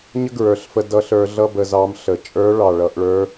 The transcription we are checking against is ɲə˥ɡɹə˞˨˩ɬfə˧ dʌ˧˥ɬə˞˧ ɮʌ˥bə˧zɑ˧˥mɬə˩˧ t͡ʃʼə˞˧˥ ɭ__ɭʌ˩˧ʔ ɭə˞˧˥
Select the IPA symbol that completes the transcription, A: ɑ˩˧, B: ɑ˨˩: B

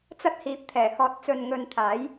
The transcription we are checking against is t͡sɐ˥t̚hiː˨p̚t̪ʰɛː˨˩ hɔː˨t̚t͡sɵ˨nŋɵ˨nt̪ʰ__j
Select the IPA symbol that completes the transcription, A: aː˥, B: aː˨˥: B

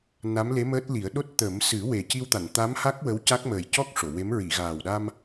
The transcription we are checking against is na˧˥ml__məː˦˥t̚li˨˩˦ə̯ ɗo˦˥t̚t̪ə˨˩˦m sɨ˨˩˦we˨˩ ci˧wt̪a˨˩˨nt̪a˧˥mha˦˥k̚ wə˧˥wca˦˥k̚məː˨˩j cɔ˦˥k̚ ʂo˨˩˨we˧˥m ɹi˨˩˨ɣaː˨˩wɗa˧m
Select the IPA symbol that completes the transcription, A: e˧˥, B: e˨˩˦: A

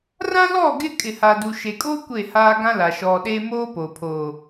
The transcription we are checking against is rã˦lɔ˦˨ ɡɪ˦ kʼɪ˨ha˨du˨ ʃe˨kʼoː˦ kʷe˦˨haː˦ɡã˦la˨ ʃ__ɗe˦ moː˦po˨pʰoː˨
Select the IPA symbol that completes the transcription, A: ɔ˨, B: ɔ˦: A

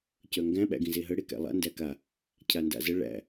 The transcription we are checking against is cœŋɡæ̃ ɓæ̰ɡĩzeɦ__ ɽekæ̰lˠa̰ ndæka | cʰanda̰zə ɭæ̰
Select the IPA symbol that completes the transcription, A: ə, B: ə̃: A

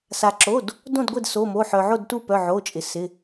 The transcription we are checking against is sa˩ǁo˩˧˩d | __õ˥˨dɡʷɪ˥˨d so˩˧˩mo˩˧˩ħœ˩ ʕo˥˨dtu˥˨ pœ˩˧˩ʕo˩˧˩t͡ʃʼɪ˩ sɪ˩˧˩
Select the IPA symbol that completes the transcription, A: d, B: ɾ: A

